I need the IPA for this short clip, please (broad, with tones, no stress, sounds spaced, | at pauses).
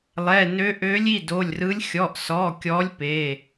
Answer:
lˠ ɛ˩˧˩ n ø˧˥ ʔ ø˧˥ lʲ i˩˧˩ d o˩˧˩ lʲ r ɯ˧˥ lʲ xʲ ɔ˩˧˩ ʔ s ɔ˩˧˩ kʲ ɔ˧˥ lʲ p e˩˧˩